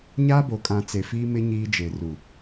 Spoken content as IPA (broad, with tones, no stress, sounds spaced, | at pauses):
ɲ aː˦ b o˨ kʼ ã˨ t͡s e˨ f iː˦ m ɪ˦ ɲ iː˦ d͡ʒ e˨ r u˨